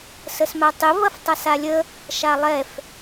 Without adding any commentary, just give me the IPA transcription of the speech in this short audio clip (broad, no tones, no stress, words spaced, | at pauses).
səsmatˤɪ vɐftˤasalʲə | ʃalˠɛf